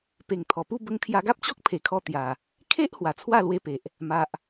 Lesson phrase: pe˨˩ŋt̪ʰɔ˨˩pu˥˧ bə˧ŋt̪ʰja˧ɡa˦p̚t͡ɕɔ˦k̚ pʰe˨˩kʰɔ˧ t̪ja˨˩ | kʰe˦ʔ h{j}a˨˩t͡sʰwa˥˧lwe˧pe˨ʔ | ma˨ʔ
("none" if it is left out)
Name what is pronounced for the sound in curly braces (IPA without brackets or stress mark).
w